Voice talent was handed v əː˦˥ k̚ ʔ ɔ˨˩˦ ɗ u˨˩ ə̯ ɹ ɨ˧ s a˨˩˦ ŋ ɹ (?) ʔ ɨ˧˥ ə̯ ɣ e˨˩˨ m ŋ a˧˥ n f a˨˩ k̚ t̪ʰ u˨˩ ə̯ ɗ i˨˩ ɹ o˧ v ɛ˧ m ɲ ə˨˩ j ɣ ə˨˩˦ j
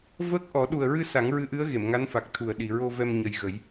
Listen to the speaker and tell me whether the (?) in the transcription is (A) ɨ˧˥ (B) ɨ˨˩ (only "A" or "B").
A